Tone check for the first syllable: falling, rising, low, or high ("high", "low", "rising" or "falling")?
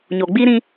low